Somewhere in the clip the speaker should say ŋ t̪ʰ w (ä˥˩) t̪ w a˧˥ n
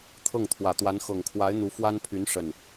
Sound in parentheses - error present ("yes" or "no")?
yes